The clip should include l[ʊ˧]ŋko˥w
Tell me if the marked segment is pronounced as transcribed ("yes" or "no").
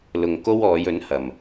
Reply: yes